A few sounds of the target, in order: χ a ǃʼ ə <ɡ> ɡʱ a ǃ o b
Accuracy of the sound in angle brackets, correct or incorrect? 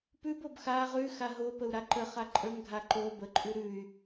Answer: incorrect